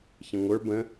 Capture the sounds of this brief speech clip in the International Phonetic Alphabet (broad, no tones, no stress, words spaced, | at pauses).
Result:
çɐ̃ŋʷə˞ bə̃